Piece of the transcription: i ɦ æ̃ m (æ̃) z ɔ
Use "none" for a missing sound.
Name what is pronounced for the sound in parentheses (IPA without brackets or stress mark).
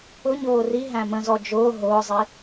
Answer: ə̃